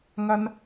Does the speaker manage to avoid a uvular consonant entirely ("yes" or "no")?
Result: yes